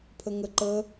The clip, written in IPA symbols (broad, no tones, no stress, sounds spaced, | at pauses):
pʰ ə ŋ ə ǃ ə